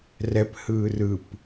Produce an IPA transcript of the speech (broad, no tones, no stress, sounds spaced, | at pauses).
r ɛ p h ɯ r ɯ p